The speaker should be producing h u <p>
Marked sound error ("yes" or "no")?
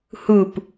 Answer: no